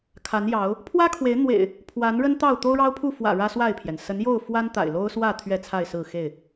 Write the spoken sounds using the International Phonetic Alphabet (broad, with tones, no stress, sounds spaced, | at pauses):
kʰ a˨˦ n j ɑ˨˦ ʊ̯ | pʰ w ä˦ kʰ w e˨˦ ɪ̯ n̪ w ḛ˨˩ ɪ̯ | pʰ w a˨˦ n ɻ ə˦ n t̪ ɑ˥˨ ʊ̯ t̪ o˦ ʊ̯ ɻ ɑ˦ ʊ̯ pʰ u˥˨ f w ä̰˨˩ ɻ ä˦ s w a˥˨ ɪ̯ pʰ j ɛ˩ n s ə˨˦ n j o˥˨ ʊ̯ f w a˦ n t̪ a̰˨˩ ɪ̯ l o˦ ʊ̯ s w ä˥˨ t̪ʰ ɥ ɛ˥˨ t͡sʰ a˥˨ ɪ̯ s ɹ̩˥˨ x e˥˨ ɪ̯